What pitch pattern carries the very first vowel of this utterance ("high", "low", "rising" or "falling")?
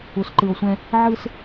low